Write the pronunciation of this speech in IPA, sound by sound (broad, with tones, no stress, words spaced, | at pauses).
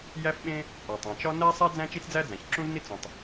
jæ˥fɓẽ˥ | ʔɒ˩tˤæ̃˩t͡ʃɒ˥ næ˥sˤæ˥ d͡zæ̃˥t͡ʃi˥t͡sd͡zæ˥ d͡zæ̃˩çǁũ˥zni˥ t͡sũ˩tˤ